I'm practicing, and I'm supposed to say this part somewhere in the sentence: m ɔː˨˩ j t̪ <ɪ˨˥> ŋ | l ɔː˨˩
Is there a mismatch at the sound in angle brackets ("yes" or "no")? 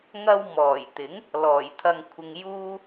no